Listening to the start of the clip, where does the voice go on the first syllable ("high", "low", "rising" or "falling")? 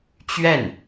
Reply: falling